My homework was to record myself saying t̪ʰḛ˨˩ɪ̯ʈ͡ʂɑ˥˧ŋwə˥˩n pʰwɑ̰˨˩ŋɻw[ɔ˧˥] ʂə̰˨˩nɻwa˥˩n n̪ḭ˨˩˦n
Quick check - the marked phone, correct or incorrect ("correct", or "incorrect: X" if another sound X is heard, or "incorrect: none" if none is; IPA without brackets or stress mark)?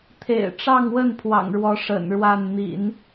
correct